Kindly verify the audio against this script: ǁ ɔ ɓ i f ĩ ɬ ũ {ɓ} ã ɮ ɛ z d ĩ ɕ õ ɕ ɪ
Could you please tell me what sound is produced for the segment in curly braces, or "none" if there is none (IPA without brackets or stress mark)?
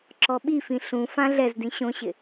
f